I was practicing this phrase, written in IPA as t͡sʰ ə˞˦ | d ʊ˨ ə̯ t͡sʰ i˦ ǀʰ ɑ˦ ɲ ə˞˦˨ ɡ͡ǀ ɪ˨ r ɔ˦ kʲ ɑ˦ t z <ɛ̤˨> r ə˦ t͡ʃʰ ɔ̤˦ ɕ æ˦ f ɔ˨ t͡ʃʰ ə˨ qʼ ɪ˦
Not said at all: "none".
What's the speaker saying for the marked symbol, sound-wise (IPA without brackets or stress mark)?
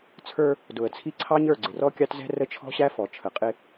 ɛ̤˦